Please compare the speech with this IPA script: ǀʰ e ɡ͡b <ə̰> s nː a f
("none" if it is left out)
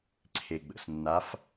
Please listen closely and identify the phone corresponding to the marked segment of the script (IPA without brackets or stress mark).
ə̰